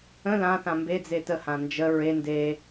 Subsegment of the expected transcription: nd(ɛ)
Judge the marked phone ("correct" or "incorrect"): incorrect